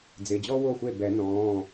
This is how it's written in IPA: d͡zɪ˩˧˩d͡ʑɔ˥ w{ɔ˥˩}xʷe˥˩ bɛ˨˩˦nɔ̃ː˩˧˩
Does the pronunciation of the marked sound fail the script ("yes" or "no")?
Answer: yes